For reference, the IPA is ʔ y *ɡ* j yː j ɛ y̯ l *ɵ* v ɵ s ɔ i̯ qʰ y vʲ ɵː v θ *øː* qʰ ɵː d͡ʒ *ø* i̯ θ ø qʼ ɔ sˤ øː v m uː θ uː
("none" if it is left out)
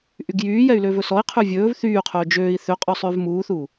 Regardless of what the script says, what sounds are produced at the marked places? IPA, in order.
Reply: ɡ, ø, yː, øː

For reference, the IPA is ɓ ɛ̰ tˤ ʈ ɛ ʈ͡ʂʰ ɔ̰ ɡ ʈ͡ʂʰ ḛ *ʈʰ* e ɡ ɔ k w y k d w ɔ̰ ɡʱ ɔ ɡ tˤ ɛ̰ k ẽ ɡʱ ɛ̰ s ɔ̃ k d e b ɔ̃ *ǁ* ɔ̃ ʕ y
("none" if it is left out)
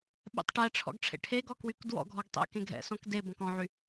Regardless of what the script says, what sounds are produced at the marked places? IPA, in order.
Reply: ʈʰ, k

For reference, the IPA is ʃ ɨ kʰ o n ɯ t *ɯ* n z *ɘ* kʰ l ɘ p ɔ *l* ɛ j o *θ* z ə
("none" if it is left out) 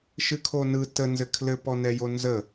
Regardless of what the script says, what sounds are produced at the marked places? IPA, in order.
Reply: ə, ɘ, n, n

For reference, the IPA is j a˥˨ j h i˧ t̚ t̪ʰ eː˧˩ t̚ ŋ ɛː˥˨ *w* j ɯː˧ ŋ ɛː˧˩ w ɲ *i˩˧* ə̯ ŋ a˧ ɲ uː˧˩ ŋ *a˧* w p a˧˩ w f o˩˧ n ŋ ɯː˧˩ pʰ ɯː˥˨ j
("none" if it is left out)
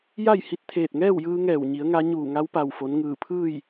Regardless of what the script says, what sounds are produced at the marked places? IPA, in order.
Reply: w, i˩˧, a˧

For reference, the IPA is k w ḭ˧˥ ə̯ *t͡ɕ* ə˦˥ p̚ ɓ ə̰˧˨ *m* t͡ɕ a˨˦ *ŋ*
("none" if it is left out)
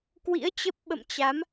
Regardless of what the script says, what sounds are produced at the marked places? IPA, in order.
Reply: t͡ɕ, m, m

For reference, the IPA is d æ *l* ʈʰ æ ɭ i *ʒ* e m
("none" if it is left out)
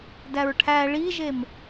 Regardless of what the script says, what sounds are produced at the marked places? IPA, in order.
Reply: ɹ, ʒ

